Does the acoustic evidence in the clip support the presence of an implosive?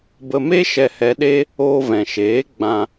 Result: yes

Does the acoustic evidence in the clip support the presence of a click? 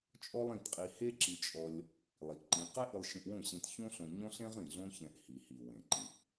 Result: yes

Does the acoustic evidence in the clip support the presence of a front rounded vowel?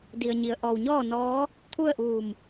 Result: no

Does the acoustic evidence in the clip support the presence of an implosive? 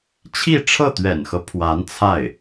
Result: no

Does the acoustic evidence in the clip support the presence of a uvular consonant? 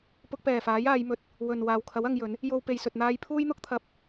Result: no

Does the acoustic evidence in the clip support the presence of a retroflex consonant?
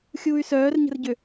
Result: no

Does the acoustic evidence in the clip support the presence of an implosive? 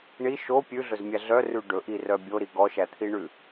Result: no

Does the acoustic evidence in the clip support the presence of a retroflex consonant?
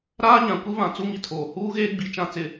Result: no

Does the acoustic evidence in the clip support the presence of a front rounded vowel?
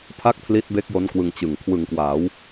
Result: no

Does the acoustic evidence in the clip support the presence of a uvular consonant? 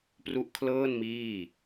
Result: no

